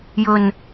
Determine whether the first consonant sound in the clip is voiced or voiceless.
voiced